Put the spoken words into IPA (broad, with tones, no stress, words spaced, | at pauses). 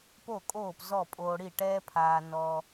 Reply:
po˥˩kʼoː˥˩p zɔ˥˩pʼoː˧ ɽi˥˩ʈɛː˥pʰaː˧ nɔ˧